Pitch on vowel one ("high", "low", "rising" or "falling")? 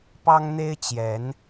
high